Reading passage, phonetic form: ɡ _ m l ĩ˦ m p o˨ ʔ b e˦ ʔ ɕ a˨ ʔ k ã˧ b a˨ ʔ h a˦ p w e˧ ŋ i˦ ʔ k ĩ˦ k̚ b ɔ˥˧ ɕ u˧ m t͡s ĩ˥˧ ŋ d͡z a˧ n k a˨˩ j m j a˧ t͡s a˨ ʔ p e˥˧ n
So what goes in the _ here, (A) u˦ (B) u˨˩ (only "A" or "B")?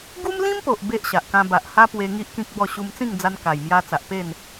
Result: A